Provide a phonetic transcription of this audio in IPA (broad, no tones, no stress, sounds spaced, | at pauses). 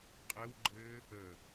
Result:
qʼ ɘ w ɡ͡ǃ ɘː | ə